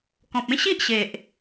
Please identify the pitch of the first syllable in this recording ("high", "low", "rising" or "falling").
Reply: low